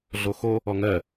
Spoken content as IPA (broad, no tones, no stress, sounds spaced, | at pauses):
ɮ o x o | ɔ ŋ ɜ